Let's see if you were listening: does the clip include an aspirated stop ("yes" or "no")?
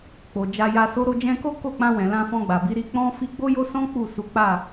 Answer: no